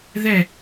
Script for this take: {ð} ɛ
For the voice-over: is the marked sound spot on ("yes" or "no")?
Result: yes